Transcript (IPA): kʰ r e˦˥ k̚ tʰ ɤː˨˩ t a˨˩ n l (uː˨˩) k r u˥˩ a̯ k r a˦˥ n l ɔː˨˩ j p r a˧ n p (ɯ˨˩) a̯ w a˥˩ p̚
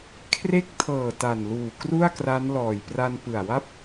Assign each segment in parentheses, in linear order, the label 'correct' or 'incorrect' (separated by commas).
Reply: correct, correct